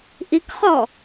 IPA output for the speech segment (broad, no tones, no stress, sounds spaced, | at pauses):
ʔ i k χ ɔ